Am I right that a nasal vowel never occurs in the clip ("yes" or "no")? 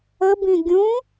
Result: no